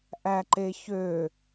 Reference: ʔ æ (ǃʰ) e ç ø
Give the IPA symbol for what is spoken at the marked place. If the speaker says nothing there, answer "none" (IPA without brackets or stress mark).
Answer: ǃ